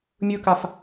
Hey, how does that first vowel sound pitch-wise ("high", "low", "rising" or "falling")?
high